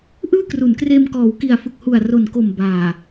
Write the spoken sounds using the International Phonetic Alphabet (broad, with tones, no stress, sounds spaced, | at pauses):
ʔ ɯː˥˩ k r u˩˦ n k r eː˧ m k ɔː˩˦ w k i˨˩ a̯ f ɯ˨˩ k̚ h u˨˩ a̯ r o˨˩ n k o˨˩ m b aː˨˩